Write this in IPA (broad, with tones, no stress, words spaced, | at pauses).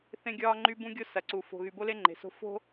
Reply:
θẽ˦ɡʲɒː˦ŋ͡ǃy˦ bũ˦ɡʲo˦sɐ˨ǀu˨ fo̤˨ɣy˨bo˦le˦ ŋ͡ǃe̤˨so̤˦ fo̤˦